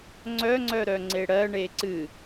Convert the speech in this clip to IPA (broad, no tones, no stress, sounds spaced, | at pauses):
ŋ͡ǀ œ ŋ͡ǀ œ ɾ œ ŋ͡ǀ e ɽ ɜ ɳ e ǀ ɨ